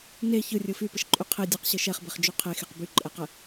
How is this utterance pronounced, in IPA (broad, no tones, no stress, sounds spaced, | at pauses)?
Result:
n e ç ɯ rʲ ɯ f y p ə ʃ ǃʼ y qʰ e dʲ ɛ q ɕ ɯ ʃ ɛ χ b e χ d͡ʒ y qʰ e x e q b y ǃʼ ɛ q ə